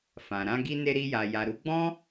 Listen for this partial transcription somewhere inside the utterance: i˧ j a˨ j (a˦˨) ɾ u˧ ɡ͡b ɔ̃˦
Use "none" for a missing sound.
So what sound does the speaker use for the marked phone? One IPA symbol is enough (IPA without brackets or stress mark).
a˨